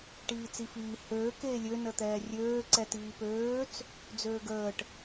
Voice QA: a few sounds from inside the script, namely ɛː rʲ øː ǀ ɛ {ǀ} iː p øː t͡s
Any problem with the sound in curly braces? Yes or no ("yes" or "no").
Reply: yes